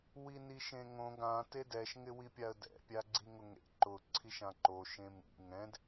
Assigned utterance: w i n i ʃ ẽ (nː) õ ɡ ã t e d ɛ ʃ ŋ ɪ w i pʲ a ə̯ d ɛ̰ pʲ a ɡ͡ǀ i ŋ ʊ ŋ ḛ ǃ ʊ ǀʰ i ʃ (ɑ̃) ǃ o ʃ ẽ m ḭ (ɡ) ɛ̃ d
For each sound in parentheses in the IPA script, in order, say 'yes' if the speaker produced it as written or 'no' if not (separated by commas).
no, no, no